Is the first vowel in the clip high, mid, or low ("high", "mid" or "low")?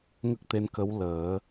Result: mid